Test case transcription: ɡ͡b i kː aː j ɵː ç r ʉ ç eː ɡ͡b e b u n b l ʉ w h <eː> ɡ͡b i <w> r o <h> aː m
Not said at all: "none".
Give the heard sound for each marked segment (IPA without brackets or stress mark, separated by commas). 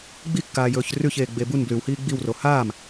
iː, w, h